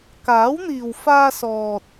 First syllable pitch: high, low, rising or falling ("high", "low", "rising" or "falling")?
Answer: rising